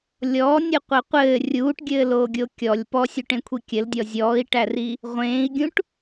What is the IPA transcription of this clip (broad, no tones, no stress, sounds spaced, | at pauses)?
lʲ ɔ nʲ ɯ qʷ ɘ qʷ ɘː rʲ uː ʈ ɡʲ ɘː l oː ɡʲ o kʲ ɔ lʲ p ɔ sʲ u ʈ ẽ kʷʰ i kʲ ɘ l dʲ ɔ zʲ ɔː i̯ ʈ æ r i | ʁʷ ẽː i̯ ɡʲ ũ ʈ